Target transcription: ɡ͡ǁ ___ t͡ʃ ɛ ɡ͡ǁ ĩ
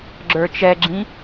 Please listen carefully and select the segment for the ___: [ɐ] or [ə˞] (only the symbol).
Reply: ə˞